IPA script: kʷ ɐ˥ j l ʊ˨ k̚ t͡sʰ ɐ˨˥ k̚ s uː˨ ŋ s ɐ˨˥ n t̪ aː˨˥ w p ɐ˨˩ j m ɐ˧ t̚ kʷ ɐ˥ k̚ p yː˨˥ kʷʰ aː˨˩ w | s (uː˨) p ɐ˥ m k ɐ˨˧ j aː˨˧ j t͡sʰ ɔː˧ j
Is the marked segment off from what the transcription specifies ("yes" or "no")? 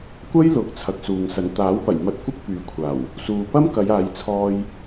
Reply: no